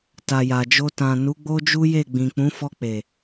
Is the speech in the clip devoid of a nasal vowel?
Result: no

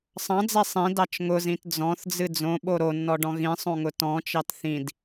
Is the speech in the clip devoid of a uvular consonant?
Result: yes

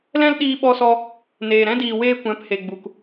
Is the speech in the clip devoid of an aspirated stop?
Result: yes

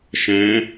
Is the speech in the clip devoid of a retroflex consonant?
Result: yes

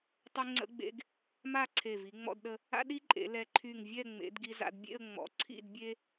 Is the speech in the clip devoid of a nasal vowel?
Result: yes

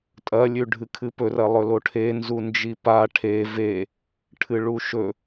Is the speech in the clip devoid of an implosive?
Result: yes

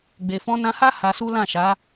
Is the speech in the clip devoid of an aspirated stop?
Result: yes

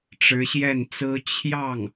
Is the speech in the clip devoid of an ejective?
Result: yes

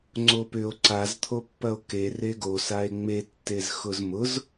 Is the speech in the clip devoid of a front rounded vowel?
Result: no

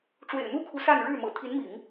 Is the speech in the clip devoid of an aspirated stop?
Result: no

